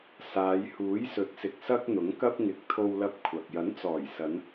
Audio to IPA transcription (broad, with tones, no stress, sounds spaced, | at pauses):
s aː˨˧ j h uː˨˥ j s ɵ˨˥ t̚ s ɪ˨ k̚ s ɐ˥ k̚ n̪ ʊ˨˥ ŋ k ɐ˥ p̚ ŋ ɪ˨ k̚ t̪ʰ o˧ w l ɐ˧ p̚ kʷʰ ɐ˨ k̚ j ɐ˨˥ n t͡s ɔː˨˩ j s ɐ˨˧ n